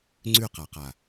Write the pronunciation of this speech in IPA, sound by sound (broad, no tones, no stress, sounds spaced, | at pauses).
ŋ͡ǀ ʉ q a q a